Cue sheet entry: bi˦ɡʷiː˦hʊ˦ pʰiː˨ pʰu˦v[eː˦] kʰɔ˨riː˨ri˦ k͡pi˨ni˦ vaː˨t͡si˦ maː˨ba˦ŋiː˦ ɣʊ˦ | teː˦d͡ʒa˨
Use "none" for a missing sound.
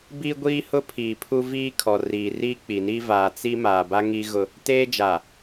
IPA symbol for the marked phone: iː˦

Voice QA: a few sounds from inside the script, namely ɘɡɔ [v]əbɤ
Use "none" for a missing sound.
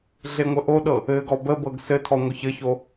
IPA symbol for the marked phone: b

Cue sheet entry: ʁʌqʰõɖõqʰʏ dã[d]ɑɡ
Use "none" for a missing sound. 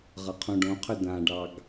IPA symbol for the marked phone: ɖ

